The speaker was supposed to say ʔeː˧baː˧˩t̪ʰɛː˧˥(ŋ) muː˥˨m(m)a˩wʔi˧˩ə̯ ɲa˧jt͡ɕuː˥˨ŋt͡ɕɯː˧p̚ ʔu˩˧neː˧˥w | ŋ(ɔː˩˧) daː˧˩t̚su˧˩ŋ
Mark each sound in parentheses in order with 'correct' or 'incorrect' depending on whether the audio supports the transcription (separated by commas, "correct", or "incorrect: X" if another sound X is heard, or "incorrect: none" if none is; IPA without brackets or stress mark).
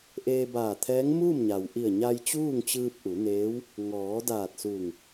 correct, incorrect: ɲ, correct